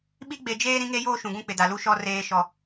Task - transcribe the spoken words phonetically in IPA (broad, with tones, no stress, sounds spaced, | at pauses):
ɓ i˦ ɡ͡b e˨ d͡ʒ eː˦ ɾ ĩ˦ ŋ e˦ j oː˦ ʃ ũ˨ ɡ ũ˦ k͡p ɪ˨ d a˨ l u˦ ʃ ɔ˦ r eː˨ ʃ ɔ˨